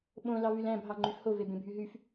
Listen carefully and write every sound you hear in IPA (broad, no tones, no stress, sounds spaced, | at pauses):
ɓ õ l ɑ v y l æ̃ b ɦ ɑ ŋ͡ǃ y f h o v e b ẽ bʱ y ɦ y f